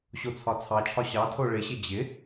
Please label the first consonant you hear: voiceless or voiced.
voiceless